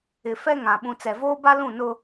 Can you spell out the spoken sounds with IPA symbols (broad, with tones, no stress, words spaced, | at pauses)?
ɪ˨fɛ˦ŋã˨ ɓũ˨t͡sɛ˨voː˦ba˦ lũ˦˨nʊ˦